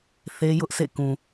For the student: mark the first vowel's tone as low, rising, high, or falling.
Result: high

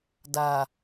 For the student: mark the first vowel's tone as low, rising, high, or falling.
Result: low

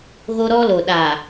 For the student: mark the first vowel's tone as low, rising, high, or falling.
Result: high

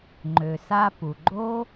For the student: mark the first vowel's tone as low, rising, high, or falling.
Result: low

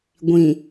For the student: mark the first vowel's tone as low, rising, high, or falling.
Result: low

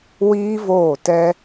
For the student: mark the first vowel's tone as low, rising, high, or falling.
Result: high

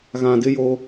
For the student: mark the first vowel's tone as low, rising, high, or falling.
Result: low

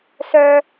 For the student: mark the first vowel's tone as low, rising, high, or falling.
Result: high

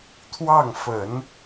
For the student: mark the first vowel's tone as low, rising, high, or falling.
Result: falling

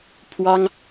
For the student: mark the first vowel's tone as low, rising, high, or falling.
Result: high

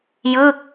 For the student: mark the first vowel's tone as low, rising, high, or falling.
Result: falling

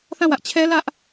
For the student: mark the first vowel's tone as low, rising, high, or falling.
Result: falling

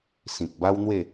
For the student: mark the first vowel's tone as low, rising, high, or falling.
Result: low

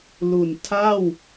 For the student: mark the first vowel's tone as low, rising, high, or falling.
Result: low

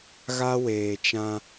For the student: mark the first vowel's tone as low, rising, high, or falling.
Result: high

